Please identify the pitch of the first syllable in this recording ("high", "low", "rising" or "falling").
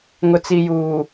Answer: low